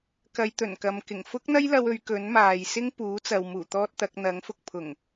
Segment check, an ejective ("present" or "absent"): absent